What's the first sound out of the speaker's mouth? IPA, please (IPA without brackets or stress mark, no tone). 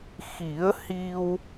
x